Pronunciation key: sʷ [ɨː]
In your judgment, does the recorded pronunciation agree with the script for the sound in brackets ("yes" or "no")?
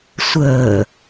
no